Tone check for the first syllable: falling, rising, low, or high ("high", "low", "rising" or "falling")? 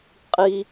low